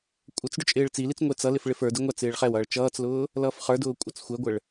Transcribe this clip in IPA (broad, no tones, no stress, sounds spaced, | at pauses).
kʷʼ ə t͡s ɖ ʊ t͡ʃʼ ɪː ɭ t͡s i l i t͡s ŋʷ ɛ t͡s ʌ l ɪ f ɭ ɪ f ə˞ d ɪ ŋʷ æ t͡s ɪː ɭ χ ɛ w ʌː ɭ t͡ʃ ʌː t͡s l ʊː | l ʌː f χ ə˞ d ʊː kʷʼ ə t͡s xʷ ɛ ɡʷ ə ɭ